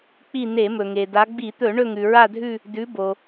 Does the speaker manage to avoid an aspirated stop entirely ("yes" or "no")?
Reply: yes